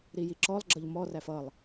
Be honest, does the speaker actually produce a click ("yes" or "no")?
yes